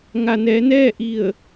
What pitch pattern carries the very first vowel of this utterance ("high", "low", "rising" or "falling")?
low